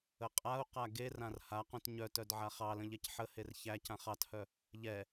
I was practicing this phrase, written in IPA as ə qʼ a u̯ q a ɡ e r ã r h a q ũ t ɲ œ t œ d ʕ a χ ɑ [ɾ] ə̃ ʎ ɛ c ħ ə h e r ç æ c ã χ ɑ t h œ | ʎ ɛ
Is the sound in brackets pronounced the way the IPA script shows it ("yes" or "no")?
no